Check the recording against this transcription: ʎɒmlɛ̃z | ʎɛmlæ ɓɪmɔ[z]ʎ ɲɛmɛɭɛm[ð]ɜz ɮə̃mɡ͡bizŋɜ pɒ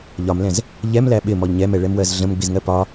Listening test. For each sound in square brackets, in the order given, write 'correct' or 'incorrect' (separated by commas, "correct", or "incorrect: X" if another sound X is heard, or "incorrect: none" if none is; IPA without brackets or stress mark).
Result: incorrect: none, incorrect: w